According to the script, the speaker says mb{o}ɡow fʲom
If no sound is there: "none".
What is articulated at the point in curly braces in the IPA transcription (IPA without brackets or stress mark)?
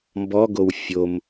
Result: ɔ